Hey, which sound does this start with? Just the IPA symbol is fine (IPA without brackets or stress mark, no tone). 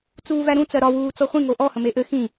t͡s